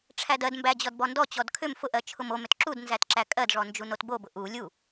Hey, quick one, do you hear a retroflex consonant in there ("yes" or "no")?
yes